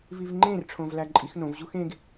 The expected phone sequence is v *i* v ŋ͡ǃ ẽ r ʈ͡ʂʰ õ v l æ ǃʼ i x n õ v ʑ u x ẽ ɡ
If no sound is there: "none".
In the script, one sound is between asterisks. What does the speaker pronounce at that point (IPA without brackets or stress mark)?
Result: i